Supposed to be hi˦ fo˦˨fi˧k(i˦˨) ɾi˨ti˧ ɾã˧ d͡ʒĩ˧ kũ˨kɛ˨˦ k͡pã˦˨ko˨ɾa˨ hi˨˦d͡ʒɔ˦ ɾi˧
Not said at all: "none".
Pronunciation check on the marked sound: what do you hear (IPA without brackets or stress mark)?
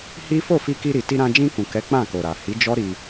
i˧